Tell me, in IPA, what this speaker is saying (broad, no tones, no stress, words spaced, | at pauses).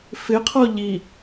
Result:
fɪqʰɔ ʎi